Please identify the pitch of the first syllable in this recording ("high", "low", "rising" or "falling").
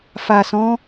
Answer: low